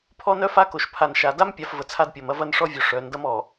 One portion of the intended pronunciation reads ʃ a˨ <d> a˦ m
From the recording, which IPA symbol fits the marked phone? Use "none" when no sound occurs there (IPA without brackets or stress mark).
d